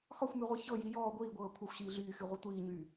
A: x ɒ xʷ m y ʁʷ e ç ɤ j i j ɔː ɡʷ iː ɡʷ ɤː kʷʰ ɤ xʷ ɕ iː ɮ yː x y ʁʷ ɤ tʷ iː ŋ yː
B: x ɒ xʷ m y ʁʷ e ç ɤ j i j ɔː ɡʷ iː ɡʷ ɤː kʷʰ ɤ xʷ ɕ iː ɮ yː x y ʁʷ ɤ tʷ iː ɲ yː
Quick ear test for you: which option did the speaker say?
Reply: B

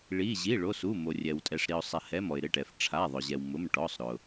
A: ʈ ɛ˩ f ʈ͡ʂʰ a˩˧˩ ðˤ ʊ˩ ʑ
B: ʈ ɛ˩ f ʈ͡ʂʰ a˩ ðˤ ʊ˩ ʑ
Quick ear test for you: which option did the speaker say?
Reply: A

